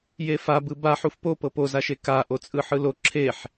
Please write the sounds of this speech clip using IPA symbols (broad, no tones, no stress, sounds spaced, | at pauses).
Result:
j e f a b ɯ b a ħ u f p o p ɤ p o z a ʃ e k a ʔ o t͡sʼ ɯ ħ ɯ l o ǁʰ e ħ